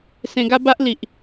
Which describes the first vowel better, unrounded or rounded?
unrounded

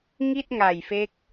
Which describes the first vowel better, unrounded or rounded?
unrounded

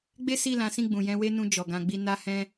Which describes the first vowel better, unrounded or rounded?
unrounded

